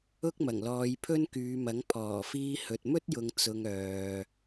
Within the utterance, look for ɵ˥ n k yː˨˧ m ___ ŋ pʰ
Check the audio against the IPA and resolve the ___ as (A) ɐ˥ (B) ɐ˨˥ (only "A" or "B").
B